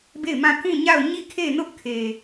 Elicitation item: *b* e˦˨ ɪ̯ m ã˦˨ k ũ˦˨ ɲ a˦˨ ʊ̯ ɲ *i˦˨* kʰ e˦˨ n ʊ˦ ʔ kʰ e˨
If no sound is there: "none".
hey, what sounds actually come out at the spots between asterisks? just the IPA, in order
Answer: b, i˦˨

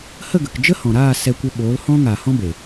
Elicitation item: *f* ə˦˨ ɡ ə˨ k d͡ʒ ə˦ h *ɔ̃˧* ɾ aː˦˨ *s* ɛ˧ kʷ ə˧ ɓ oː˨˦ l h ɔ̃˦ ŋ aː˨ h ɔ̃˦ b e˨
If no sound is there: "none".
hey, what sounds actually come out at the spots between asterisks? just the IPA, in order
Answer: h, ɔ̃˨, s

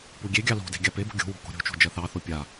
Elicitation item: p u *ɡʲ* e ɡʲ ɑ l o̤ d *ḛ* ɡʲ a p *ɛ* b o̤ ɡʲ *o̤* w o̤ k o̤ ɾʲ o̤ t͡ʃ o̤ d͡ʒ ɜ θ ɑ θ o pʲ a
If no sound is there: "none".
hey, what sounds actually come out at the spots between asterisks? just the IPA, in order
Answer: ɡʲ, e̤, e, o̤

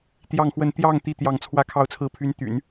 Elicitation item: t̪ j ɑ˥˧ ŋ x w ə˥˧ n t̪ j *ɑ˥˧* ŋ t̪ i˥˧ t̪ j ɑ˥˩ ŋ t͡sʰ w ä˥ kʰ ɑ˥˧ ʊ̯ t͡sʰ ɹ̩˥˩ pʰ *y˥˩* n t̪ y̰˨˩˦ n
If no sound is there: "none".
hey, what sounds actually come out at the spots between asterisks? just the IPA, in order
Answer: ɑ˥˧, y˧˥

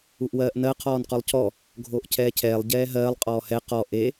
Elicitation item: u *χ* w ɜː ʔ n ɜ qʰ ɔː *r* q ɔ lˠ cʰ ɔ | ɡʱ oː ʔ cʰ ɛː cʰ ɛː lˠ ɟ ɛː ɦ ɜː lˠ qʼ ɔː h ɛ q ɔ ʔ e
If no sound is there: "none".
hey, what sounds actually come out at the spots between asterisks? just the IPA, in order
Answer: ʔ, n

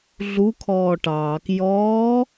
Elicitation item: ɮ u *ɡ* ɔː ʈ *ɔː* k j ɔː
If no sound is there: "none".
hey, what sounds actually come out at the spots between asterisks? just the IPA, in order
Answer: kʰ, ɑː

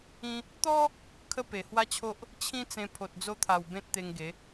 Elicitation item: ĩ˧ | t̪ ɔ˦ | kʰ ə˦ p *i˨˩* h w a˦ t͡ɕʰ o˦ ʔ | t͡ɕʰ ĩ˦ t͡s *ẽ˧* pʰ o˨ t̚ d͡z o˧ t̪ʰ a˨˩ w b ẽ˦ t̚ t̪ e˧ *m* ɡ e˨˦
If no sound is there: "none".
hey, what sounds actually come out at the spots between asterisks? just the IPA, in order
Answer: e˨˩, ẽ˧, ŋ

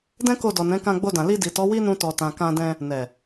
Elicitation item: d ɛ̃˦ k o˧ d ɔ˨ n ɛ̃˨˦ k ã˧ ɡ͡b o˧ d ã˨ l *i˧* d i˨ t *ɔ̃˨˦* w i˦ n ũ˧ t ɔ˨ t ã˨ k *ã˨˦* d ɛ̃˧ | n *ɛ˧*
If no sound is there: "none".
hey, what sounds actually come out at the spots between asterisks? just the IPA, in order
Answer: i˧, ɔ˨˦, ã˧, ɛ˨

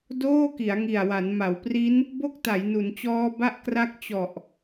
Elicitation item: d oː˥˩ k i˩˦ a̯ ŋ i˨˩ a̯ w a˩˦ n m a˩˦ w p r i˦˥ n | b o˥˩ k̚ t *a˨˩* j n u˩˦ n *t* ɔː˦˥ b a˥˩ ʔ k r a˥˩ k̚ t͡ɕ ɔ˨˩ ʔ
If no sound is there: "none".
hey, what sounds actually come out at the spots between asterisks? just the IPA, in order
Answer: a˩˦, t͡ɕ

